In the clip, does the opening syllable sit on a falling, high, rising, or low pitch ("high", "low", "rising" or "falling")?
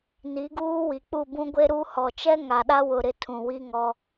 rising